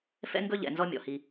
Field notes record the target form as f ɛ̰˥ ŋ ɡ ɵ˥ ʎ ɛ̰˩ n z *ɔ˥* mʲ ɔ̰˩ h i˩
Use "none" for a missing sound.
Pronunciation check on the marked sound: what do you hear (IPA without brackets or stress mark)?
ɔ˥